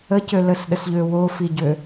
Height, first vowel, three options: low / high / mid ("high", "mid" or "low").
mid